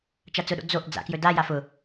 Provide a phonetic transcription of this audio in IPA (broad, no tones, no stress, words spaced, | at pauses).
t͡ʃat͡sʊɗo̰ d͡zoʔ d͡za̰kjɵdaja fʊ